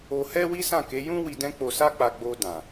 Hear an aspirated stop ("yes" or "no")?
no